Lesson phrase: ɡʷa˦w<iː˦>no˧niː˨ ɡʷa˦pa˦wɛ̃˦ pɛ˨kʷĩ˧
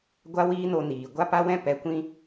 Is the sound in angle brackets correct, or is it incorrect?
correct